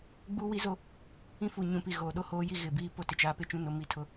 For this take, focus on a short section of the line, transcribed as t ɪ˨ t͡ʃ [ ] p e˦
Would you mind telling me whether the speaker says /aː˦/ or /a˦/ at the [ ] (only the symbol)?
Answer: aː˦